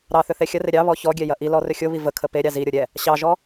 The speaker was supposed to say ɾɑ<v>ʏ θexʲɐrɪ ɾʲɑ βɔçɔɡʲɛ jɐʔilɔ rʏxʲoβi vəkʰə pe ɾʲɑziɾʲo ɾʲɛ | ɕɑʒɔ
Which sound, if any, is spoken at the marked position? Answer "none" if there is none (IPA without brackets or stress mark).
θ